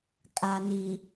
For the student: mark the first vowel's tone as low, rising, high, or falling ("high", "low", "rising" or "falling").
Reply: low